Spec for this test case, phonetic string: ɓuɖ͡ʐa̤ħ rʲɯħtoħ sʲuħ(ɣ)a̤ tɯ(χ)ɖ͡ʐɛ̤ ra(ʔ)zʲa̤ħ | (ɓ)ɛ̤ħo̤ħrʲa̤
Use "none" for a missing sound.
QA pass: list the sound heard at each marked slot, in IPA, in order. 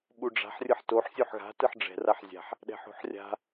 ɣ, ħ, ħ, ɗ

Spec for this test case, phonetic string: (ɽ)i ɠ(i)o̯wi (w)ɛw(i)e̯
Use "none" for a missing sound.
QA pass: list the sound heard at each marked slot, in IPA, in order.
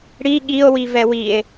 ɽ, i, v, i

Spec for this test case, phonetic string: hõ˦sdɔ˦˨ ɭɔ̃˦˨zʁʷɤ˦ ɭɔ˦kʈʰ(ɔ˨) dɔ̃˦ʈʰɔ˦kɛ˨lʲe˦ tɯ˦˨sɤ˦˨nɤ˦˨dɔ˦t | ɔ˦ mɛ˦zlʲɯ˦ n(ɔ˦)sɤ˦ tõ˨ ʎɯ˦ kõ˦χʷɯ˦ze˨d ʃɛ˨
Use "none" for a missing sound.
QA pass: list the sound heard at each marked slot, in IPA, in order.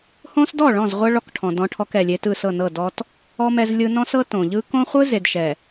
ɔ̃˨, ɔ̃˦

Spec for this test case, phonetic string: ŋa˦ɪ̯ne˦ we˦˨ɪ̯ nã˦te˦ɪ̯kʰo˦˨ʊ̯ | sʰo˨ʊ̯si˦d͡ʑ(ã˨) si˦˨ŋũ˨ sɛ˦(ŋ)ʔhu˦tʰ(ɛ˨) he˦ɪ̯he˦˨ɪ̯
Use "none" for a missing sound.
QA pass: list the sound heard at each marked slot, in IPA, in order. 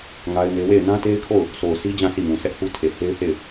ã˦˨, none, e˨

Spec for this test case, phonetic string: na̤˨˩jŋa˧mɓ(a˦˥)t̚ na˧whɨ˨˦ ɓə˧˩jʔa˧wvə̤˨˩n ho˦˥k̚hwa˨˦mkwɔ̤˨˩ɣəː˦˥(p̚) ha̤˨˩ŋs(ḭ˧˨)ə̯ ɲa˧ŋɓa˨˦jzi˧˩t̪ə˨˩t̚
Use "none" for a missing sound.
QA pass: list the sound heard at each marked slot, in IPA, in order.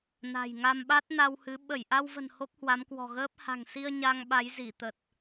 a˦˥, p̚, i˧

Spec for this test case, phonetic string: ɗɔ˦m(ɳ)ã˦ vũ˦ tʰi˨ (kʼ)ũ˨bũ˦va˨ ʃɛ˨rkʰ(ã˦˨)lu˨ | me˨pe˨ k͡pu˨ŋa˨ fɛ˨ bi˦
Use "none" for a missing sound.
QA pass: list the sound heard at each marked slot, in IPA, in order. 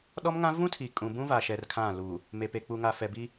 ŋ, kʼ, ã˦˨

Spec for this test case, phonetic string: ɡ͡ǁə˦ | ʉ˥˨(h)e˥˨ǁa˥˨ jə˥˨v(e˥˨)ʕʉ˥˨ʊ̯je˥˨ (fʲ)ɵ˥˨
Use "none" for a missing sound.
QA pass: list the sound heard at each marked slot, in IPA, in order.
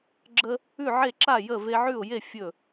ʕ, e˦, fʲ

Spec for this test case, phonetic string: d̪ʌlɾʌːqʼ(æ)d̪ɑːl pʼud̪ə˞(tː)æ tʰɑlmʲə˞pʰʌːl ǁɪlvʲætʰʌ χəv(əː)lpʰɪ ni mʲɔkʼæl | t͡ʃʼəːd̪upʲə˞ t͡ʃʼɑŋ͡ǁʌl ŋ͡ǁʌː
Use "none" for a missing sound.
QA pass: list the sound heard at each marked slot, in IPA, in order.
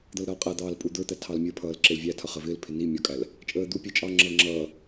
æ, t̪, ɪː

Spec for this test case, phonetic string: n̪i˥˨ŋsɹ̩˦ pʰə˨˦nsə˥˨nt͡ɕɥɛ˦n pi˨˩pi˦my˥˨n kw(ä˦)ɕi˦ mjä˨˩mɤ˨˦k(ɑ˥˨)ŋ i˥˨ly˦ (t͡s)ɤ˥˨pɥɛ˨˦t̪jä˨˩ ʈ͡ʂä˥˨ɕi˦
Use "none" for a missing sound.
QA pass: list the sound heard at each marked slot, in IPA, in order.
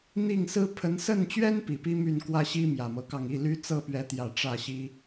ä˦, ɑ˥˨, t͡s

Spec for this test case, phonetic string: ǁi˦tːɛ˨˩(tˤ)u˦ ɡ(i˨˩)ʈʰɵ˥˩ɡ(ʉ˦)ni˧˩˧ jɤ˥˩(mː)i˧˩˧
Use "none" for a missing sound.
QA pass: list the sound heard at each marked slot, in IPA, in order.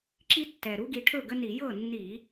ɾ, i˨˦, ə˦, nː

